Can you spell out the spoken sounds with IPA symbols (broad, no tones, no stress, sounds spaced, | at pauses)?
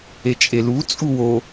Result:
e t͡ʃʼ e l u t͡sʼ u w o